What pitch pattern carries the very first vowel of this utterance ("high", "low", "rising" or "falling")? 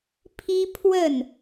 high